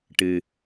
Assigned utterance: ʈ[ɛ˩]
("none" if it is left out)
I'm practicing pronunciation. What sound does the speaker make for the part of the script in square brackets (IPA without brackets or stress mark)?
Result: ɨ˩